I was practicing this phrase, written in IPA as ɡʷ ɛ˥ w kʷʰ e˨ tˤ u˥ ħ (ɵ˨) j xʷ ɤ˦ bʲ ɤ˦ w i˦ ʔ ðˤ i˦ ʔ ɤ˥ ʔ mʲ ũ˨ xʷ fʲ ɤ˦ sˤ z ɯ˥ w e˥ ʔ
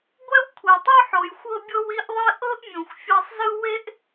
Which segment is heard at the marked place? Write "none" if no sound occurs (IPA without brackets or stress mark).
o˨